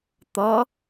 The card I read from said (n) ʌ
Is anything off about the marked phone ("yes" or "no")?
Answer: yes